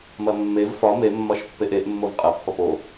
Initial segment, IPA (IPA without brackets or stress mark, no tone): m